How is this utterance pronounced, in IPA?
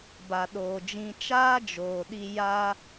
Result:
ba˨ɗoː˨d͡ʒĩ˧ t͡ʃaː˦d͡ʒoː˨ ɗi˦ ja˦

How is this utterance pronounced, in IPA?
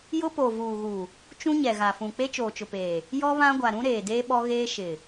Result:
jʊ˦po˨ vuː˨ɣu˨ | t͡ʃũ˦ɲɛ˨ɣa˨fũ˨ k͡pe˦t͡ʃoː˨t͡ʃʊ˨peː˨ | jɔ˦ βã˦ɡʷa˨ ɾũ˦ɾeː˨deː˦ ɓɔ˦ɣeː˦ ʃɪ˨

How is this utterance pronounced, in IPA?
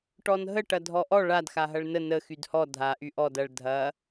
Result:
ʈɔnɦə ʈɐdʱɔʔɔ ɭad xaɦɐɭnə nə xydhɔ dʱa ʔyʔɔd ɐɭ dʱɐ

